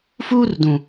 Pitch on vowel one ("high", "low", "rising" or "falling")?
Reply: high